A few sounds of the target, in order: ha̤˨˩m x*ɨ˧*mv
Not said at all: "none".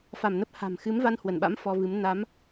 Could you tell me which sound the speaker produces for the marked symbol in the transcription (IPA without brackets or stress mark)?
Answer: ɨ˨˦